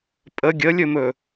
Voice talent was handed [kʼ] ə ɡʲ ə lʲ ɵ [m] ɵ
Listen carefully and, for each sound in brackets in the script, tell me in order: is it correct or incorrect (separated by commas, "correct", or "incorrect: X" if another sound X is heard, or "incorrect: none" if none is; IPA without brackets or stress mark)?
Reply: incorrect: pʼ, correct